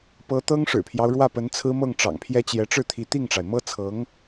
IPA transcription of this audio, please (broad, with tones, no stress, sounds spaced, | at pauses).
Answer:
p ɤ˧˥ t̪ ɤ˥ ŋ ʂ ɻ̩˨˩ pʰ j ɑ˦ ʊ̯ ɻ w ä˥˩ p ə˧˥ n t͡sʰ ɹ̩˥ m ɤ˥˩ ŋ ʈ͡ʂ ɑ̰˨˩ ŋ pʰ j ɛ˥ t͡ɕ j ɛ˧˥ ʈ͡ʂ ɻ̩˥˩ t̪ʰ i˧˥ t̪ i˥˩ ŋ ʈ͡ʂ a˩ ɪ̯ m ɤ˥ t͡sʰ ɤ˧˥ ŋ